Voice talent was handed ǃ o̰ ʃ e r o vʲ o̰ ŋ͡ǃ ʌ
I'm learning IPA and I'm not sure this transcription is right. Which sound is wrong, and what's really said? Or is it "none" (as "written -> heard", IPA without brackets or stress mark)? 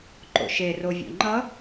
none